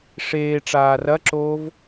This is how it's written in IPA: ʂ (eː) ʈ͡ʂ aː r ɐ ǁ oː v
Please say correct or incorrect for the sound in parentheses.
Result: correct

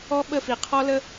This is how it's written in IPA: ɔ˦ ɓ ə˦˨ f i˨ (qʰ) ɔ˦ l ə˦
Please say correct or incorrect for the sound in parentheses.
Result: correct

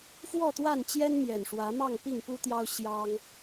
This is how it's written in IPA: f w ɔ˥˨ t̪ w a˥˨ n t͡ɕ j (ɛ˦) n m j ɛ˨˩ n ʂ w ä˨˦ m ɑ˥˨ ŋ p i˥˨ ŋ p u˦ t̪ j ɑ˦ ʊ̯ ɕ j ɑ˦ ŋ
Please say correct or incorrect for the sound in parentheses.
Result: correct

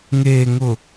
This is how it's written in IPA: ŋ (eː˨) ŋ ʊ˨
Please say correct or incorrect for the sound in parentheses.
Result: correct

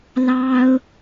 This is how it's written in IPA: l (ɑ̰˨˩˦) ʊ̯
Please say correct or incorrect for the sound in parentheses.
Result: incorrect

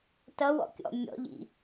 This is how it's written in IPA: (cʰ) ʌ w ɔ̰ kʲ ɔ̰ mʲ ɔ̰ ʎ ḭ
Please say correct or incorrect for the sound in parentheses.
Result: incorrect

